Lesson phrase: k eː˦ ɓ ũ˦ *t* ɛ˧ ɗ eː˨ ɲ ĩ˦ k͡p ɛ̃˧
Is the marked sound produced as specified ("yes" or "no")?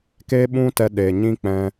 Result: yes